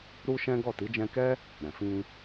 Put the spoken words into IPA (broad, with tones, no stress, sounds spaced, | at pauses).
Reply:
ɾ u˦ ʃ ɛ̃˦ ɡ ɔ˦˨ t i˨˦ d͡ʒ ɛ̃˧ k ɛ˦ | ɾ ɛ̃˨ f ĩ˧